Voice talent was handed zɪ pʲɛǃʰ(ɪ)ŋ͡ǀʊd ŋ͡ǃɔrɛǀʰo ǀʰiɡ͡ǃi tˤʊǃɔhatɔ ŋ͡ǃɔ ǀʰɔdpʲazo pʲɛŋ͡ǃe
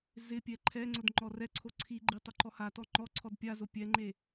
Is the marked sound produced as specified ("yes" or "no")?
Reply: no